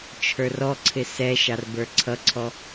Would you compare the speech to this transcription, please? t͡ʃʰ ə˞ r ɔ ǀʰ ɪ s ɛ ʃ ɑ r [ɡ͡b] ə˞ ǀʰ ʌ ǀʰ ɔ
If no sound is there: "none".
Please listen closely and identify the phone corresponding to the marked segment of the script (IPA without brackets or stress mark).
b